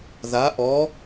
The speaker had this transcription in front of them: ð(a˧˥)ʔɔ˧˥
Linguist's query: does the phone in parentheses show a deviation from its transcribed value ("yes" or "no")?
no